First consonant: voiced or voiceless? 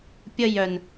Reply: voiceless